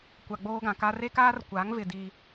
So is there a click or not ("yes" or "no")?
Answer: no